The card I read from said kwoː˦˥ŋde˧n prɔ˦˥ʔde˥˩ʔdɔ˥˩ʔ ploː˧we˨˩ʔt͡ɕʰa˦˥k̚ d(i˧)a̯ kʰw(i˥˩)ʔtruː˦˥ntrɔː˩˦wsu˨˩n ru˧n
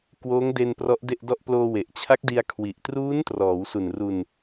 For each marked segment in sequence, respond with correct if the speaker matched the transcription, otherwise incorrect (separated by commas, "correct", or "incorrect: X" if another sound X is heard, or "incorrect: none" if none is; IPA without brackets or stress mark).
correct, incorrect: i˨˩